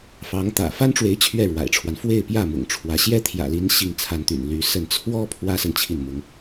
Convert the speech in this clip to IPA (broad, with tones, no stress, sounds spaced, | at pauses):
f ɑ˧˥ ŋ t̪ ä̰˨˩ f a˥ n ʈ͡ʂ w e˧˥ ɪ̯ t͡ɕʰ ɥ ɛ˥˩ ɻ w a̰˨˩ ɪ̯ ʈ͡ʂʰ w a˦ n f w e˥˧ ɪ̯ p j ä˥˩ m ʊ̰˨˩ ŋ ʈ͡ʂʰ w ä˧˥ ɕ j ɛ˥ t̪ʰ j ä̰˨˩ l i˧˥ n ɕ i˥˩ ŋ t͡sʰ a˧˥ n t̪ y̰˨˩ n l y˧˥ s ə˥˩ n t͡sʰ w ɔ˥ pʰ w ä˥ s ə˨ n t͡ɕʰ i˥˩ n m ʊ˧˥ ŋ